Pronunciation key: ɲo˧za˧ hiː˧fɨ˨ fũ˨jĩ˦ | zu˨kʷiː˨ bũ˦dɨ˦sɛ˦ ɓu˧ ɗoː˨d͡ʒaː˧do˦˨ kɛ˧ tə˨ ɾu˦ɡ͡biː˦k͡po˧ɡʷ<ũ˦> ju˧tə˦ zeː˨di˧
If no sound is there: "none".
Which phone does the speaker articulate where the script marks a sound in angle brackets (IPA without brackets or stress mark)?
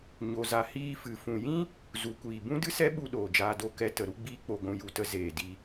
ũ˧